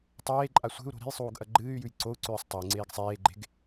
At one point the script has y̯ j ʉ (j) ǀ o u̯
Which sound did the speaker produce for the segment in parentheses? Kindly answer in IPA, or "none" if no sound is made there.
j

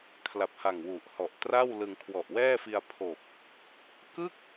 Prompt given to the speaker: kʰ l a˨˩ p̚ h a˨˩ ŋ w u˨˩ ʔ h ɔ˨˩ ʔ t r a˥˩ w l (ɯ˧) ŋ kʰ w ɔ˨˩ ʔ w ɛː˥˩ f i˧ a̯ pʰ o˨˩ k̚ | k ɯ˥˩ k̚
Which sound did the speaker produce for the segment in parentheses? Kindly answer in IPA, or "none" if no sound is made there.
ɯ˧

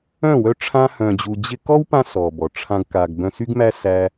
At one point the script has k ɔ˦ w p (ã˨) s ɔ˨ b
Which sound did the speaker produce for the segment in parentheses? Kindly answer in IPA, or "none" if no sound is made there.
ã˧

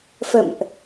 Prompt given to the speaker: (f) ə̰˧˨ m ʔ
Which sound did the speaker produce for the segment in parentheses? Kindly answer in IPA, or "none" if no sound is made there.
f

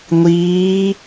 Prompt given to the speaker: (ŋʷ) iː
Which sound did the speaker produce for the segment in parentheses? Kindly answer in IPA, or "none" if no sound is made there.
ŋʷ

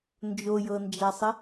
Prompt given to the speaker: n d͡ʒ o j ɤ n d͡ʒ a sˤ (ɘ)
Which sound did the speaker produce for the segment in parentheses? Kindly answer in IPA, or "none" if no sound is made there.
ɘ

